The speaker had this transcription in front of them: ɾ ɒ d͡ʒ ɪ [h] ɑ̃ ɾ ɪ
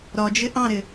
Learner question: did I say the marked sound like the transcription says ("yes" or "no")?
no